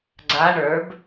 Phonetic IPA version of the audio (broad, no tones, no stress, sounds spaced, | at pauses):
ɡ͡ǀ a ɳ ə˞ b